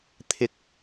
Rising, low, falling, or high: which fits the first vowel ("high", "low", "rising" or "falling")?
high